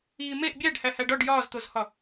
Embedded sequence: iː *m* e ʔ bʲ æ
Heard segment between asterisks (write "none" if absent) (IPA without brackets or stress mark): m